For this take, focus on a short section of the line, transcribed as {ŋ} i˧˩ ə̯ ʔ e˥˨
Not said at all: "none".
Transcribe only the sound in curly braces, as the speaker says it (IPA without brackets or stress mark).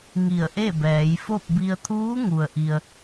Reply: ŋ